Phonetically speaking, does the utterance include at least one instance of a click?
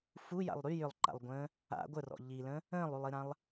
yes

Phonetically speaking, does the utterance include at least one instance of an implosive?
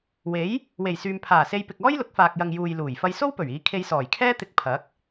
no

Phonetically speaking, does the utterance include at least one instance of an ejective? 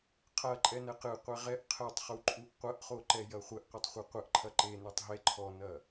yes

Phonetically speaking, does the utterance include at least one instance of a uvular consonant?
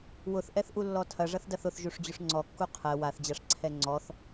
yes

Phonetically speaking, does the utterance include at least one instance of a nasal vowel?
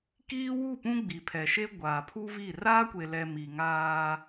yes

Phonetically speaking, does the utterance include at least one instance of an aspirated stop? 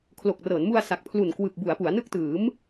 yes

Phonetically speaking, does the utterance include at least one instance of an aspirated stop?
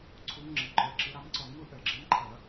yes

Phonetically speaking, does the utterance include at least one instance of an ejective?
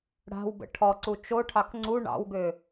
no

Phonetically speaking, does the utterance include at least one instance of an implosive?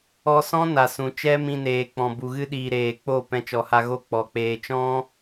yes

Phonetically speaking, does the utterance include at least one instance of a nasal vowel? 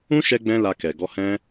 yes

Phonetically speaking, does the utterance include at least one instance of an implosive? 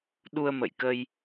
yes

